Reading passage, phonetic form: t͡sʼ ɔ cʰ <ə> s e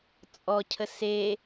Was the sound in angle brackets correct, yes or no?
yes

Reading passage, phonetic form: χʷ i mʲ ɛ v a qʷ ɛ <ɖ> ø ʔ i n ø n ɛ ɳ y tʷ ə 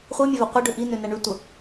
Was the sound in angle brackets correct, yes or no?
yes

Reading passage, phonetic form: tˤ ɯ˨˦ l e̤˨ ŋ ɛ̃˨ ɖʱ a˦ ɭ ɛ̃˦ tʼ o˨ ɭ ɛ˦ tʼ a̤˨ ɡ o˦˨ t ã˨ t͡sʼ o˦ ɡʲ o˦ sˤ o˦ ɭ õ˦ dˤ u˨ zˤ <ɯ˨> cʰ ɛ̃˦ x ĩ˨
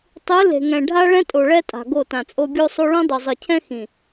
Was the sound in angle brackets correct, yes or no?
yes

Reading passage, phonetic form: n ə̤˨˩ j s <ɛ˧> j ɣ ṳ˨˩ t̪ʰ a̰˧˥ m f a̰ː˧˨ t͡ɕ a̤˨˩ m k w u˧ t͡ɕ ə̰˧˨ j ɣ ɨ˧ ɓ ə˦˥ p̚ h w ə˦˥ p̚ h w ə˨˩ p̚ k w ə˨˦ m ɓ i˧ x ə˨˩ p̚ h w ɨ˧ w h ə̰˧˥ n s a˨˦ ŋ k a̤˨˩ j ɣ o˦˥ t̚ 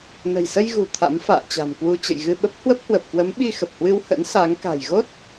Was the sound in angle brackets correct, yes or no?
no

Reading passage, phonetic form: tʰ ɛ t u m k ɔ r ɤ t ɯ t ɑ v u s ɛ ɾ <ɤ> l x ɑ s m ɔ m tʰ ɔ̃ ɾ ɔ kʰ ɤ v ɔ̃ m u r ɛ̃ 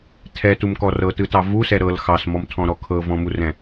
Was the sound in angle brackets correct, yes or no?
yes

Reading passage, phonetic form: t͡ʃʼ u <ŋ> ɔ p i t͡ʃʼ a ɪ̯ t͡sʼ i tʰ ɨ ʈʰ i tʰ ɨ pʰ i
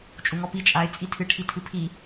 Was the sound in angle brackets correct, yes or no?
yes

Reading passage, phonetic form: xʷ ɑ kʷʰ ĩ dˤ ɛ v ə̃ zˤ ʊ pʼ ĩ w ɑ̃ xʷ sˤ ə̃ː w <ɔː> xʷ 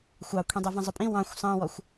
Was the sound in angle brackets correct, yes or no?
no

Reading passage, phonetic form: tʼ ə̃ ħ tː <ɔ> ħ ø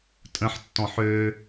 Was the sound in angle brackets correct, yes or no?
no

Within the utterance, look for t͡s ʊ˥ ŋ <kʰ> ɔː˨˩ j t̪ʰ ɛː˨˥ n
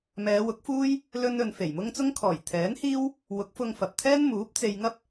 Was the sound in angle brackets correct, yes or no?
yes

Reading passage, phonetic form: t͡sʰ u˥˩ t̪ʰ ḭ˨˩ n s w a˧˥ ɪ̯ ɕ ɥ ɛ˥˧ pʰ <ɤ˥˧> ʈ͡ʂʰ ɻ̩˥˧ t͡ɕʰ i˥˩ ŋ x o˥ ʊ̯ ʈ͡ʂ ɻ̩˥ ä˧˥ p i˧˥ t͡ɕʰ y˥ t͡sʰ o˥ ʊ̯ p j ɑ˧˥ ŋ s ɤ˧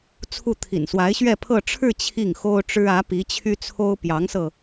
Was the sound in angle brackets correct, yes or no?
yes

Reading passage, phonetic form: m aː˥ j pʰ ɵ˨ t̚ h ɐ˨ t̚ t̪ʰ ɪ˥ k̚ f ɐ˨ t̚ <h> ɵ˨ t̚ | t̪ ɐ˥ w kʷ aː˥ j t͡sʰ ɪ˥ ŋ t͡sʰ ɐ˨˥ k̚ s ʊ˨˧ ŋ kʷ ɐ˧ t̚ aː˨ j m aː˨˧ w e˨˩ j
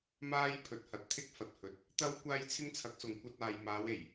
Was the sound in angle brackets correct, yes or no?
yes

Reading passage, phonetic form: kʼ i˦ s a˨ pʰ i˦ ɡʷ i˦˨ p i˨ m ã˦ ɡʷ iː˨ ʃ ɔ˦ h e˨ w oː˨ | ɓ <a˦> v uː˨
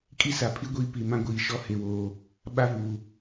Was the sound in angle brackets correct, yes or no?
yes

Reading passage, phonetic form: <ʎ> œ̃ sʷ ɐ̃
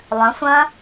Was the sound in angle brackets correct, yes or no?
no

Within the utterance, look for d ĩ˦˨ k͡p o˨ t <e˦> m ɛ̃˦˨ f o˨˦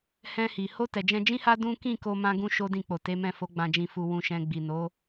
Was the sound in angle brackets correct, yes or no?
no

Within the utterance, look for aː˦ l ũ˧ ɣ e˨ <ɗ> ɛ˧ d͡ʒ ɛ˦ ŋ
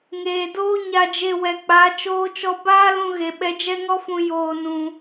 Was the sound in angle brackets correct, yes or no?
no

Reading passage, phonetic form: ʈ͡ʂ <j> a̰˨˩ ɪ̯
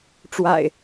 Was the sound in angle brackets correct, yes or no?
no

